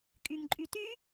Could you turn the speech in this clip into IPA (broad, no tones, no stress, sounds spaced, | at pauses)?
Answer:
kʼ y ŋ ǃʼ y t y